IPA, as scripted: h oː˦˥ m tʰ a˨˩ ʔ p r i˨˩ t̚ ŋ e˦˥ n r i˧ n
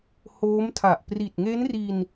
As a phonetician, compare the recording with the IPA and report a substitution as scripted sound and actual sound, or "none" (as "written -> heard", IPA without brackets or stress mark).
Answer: none